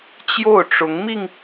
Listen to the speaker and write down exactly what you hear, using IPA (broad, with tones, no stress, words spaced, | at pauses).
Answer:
t͡ɕjo˥˩ʊ̯ʈ͡ʂʊ˧˥ŋmi˧ŋ